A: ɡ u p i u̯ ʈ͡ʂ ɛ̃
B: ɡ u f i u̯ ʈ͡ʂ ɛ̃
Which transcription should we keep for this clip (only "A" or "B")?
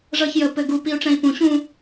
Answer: A